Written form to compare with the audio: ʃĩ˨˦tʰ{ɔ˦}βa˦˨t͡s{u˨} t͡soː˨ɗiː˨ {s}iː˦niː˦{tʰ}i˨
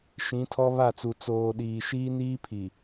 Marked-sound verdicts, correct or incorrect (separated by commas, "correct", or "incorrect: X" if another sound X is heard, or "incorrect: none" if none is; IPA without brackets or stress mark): correct, correct, incorrect: ʃ, incorrect: pʰ